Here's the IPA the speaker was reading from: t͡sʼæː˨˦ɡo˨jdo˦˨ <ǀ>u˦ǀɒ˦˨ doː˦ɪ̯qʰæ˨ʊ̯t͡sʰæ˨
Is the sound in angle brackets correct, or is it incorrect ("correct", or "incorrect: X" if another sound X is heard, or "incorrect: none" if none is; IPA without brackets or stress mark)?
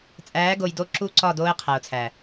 incorrect: ǁ